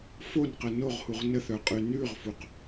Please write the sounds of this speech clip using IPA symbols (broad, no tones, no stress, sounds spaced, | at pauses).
f o n q ə n o ʁ h u ʁ n ə θ œ qʼ ʉ n ʉ ʁ f u q